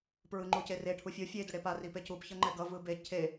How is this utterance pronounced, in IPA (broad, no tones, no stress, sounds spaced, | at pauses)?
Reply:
p ɹ ɯ ŋ͡ǃ u c e r e ʈʰ u fʲ o fʲ e d o ɽ e p a r i p e c u p ç ʌ ŋ͡ǃ ɛ ɡ ʌ v ɯ b e cʰ e